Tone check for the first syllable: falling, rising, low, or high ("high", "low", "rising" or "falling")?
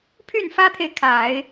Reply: falling